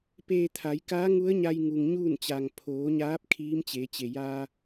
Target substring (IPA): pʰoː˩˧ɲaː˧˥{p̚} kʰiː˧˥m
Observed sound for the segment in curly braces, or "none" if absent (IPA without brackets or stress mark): p̚